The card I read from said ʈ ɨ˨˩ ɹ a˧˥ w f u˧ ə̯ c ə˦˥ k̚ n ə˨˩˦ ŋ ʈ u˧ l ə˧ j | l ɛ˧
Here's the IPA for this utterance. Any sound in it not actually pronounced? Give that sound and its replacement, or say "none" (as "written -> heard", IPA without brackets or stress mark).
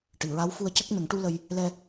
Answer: none